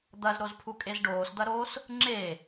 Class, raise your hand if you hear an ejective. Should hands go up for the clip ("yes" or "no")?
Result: yes